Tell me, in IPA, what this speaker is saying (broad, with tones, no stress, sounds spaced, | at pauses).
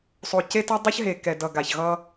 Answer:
sˤ o˨ c e˦ t ʌ˦ dˤ ʌ˦ ç ɦ e˨ k ɛ˨ d ʌ˨ ɡ a˨ ç ɣ ʌ˧